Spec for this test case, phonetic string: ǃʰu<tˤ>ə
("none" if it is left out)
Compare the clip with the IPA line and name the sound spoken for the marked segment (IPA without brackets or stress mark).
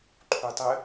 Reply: tˤ